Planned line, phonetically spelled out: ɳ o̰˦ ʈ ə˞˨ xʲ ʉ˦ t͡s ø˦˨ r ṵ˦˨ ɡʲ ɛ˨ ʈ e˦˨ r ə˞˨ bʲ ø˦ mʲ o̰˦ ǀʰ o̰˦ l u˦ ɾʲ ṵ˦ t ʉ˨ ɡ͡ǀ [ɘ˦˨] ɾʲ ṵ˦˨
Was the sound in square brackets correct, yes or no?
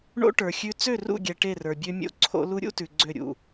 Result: no